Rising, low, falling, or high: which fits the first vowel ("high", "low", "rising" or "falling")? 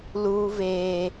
high